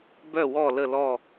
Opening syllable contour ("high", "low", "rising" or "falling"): falling